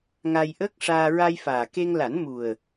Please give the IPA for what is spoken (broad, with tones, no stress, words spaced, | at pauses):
ŋa˧jʔəː˦˥k̚ʂaː˧ ɹa˧jfaː˨˩ke˧ŋ la˨˩˦nmu˨˩ə̯